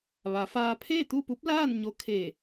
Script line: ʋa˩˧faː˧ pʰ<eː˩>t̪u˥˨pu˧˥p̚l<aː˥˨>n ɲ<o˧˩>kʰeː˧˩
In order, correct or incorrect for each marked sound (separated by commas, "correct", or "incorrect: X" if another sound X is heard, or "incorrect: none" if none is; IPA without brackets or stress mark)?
incorrect: eː˥˨, correct, incorrect: o˧˥